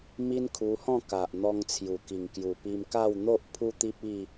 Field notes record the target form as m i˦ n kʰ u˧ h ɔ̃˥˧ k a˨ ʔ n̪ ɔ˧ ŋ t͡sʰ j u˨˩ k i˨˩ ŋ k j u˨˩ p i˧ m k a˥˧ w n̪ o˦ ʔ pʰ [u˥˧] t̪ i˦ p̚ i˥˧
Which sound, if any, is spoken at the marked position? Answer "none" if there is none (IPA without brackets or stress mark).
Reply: u˦